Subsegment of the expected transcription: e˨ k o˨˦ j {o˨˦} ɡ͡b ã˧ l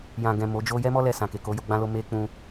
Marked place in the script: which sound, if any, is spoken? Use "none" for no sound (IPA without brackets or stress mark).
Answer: o˧